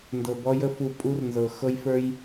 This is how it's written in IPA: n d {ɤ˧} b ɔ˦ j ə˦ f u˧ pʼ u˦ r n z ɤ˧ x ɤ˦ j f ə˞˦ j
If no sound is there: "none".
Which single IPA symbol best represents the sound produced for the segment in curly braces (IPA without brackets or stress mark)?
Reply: ɤ˧